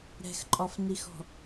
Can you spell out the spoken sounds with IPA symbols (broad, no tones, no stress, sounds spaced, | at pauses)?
ɾ ɛ̤ x ǃʼ ɒ f n i x ɔ̤